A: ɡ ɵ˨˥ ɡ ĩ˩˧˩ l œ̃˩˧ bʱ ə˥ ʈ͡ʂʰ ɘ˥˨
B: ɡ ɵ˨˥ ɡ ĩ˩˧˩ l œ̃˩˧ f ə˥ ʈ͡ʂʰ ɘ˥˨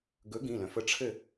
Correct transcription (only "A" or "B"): B